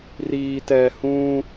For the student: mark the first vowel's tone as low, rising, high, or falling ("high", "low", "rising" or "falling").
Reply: low